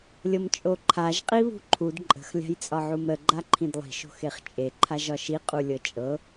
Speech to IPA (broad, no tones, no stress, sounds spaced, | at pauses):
lʲ ɤ m t͡ʃʼ o ǃʰ a ʒ qʼ i β ṳ ǃʰ u d ǃʼ ə̤ x lʲ a̤ j t͡sʼ ɒ ʕ u m ɾ ə ɡ͡ǃ a ǃʰ ĩ d lˠ i̤ ʃ o̤ x e χ t͡ʃʼ e ǃʰ a ʒ ɒ ʃ i qʼ u lʲ ɤ t͡ʃʼ ɤ